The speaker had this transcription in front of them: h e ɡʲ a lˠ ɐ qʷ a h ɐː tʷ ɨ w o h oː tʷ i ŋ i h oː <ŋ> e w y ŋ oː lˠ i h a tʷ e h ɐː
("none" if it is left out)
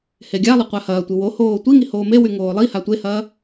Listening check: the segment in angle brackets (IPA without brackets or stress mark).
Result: m